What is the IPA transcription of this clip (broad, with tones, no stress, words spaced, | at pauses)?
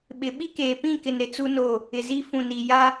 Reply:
ɓɪ˨ ɓi˦keː˨ pĩ˦˨kɪ˨n ɾɪ˦t͡su˦no˦˨ | ɪ˨zi˦ fũ˨ni˨ ja˦